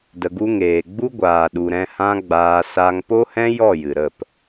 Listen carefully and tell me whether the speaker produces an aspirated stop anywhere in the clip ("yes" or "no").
no